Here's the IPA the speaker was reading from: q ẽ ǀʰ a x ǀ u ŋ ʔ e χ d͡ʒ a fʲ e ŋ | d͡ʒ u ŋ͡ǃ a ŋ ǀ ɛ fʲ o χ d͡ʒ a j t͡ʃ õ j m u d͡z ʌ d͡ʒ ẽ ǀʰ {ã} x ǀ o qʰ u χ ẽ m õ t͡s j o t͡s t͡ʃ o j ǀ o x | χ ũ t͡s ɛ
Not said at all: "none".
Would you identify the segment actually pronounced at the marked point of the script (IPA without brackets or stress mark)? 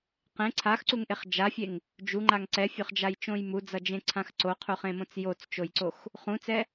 ã